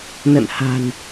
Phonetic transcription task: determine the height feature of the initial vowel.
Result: mid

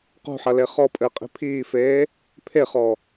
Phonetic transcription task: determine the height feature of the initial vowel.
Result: high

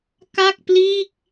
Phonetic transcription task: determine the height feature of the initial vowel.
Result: low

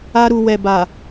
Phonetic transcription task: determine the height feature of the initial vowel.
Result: low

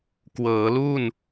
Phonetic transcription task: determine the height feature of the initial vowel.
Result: mid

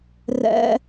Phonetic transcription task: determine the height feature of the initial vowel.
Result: mid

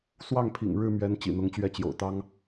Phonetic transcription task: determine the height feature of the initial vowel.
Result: low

